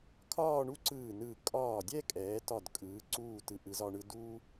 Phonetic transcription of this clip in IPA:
kʰ ɒː˥˧ ɳ u˥ ǀ ɯː˧˩ n ɯː˧˩ kʼ ɒː˧˩ dʲ ɛ˥˧ kʼ ɛː˩˧ t ɒ˧˩ d kʼ ɯː˩˧ ǀ uː˧˩ t ɯ˩˧ ʔ ɯ˩˧ z ɒ˧ ɳ ɯ˧ d uː˥

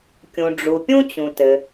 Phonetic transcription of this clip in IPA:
kʲ ũ˩ ɖ͡ʐ u˩ pʲ ũ˥ t͡ɕ ũ˩ t ɘ˩

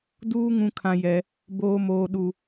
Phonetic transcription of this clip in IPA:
d uː˦ ŋ ũ˦ kʰ ã˦ j ɛ˦ | b oː˦ m oː˦ ɗ u˦

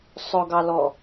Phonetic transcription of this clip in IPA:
sˤ ʊ ɡ ɑ l ɔ

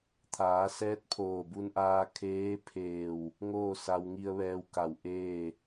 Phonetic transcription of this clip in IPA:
t̪ʰ aː˩˧ s ɛː˧˥ t̚ pʰ oː˧˩ b u˧ n ʔ aː˧ kʰ eː˧˥ pʰ eː˧˩ w | ŋ oː˥˨ s a˧ w ŋ i˧ ə̯ ʋ ɛː˧ w k a˧˩ w ʔ eː˥˨

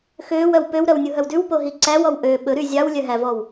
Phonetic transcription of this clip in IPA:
x øː w œ w p ø w ɾ œ w nʲ u ɦ œ w d ʉ w p o ɦ i ǀ æ w ɔ w ʔ øː ɓ ɵ ɾ y zʲ ɑ w lʲ œ ɦ æ v ɔ w

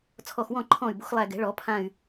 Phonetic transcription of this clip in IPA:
t͡sʰ ɔ˧˩ x w ɔ̃˥˩ ǃʰ ɔ̃ː˧˩ y̯ b o̤˨˦ x lˠ æ˧˩ ɡ ɛ̤˨˩˦ ɭ ɔ˨˩˦ pʰ ã˧˩ y̯

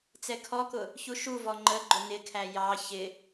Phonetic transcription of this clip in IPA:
t͡s ɛ kʰ ɔ k ʊ | ç u ʃ u v ɔ ŋ͡ǃ ə ɡ͡ǃ ʊ n ɪ kʰ æ j ɑ ç ɪ

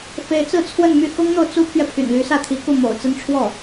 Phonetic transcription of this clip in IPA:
f e˧˥ ɪ̯ t͡s ɹ̩˥˧ t͡sʰ w ə˥˧ n m y˥˩ x ʊ˥ ŋ n̪ o˨ ʊ̯ t͡s u˥ pʰ ɥ ɛ˨ pʰ y̰˨˩ n l y˧˥ s ä˥˩ t̪ʰ i˧˥ k u˥˩ m o̰˨˩ ʊ̯ t͡s ə˥ n ʈ͡ʂʰ w ɔ˥˩

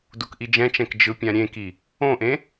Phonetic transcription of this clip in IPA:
d u k ʔ i d͡ʒ ɛ̃ t͡ʃ ɛ̃ k d͡ʒ ɯ pʲ ã ɾʲ ẽ k i | õ ʔ ẽ

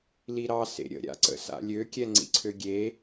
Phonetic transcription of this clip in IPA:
l i ɾ ɑ s ḛ ɾʲ ə̰ ɾʲ a̰ ǀ ə̰ s a̰ lʲ ø kʲ ɛ ŋ͡ǀ ḭ ǀʰ ø ɡʲ e

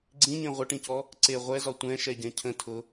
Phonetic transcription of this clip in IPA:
ɡ͡ǀ ĩ ɲ ẽ ʁʷ ə ʈ ĩ c ɔ | ǀ e ʁʷ ɛ z ɒ tʷ ɛ̃ ʃ ɛ ɟ ɛ̃ cʰ ə̃ tʰ ʊ

